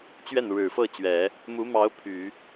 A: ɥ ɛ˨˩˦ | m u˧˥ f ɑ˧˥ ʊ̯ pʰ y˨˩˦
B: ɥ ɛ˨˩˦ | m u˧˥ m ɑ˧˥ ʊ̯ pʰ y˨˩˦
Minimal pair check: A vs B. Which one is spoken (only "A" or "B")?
B